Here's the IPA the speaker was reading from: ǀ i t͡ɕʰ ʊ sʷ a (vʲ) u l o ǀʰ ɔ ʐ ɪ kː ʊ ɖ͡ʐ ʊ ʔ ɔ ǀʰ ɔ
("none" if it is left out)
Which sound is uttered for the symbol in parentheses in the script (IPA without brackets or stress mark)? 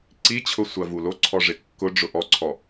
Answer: v